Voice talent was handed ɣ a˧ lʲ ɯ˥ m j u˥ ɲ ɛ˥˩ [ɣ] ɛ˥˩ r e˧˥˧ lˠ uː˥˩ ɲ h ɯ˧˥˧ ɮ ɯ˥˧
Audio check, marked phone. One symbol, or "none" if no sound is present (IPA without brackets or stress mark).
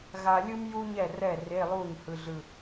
r